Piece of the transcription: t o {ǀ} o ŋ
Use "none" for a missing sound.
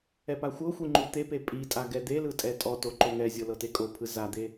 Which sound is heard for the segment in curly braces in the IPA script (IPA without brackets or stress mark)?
ǃ